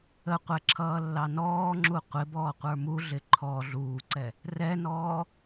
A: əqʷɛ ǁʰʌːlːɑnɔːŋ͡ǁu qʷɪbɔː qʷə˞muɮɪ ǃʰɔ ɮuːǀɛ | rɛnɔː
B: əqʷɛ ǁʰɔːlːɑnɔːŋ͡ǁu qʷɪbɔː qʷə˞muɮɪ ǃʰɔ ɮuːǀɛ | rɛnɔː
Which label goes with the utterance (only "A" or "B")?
A